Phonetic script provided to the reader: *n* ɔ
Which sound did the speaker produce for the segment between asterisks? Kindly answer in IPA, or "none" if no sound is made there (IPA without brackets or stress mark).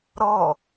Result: ɾ